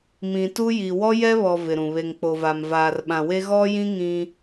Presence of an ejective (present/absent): absent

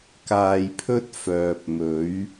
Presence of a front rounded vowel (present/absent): present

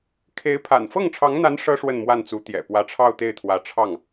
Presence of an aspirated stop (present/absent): present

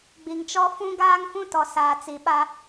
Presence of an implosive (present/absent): present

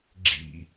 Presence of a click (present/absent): present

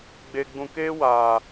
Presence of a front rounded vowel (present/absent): absent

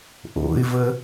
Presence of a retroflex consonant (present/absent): absent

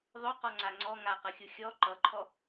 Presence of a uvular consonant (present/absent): present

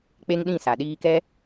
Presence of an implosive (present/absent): present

